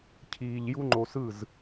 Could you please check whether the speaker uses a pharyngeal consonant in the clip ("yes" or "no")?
no